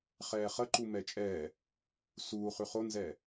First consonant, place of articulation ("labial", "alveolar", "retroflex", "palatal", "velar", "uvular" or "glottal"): uvular